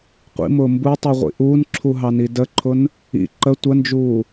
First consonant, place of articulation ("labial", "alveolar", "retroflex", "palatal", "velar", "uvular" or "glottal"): uvular